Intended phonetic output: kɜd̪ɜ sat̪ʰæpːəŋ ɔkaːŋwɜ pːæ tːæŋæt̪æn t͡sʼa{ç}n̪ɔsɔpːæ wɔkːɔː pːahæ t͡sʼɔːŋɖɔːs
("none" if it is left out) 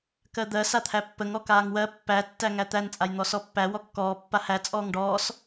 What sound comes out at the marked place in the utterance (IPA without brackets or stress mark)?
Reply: j